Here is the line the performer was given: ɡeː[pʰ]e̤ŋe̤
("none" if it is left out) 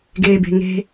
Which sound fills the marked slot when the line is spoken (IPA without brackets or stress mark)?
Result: b